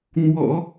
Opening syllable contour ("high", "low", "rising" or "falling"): low